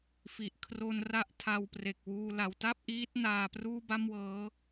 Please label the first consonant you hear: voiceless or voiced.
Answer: voiceless